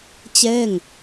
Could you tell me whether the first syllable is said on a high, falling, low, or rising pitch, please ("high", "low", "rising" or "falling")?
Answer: falling